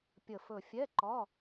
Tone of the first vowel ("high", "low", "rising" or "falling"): low